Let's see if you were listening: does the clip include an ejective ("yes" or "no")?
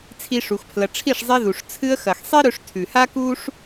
no